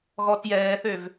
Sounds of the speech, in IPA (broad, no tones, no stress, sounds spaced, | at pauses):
ɣ ɔ t j ɛː θ ø v